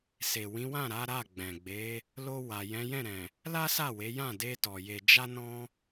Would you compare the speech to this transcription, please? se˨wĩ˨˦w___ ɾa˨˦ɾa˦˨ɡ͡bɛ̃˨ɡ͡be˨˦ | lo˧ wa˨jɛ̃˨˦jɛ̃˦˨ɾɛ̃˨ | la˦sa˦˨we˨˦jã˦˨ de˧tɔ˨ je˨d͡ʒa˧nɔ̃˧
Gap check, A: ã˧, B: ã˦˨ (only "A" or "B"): B